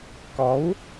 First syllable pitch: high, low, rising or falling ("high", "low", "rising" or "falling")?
rising